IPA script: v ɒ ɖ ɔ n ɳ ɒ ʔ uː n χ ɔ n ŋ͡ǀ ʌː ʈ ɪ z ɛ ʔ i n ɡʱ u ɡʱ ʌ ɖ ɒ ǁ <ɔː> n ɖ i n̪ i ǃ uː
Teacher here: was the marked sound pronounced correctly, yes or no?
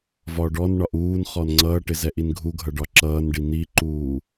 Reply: no